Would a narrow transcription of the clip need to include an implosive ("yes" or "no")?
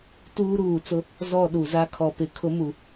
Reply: yes